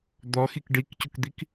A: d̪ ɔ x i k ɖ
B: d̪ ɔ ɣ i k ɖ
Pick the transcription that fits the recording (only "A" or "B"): A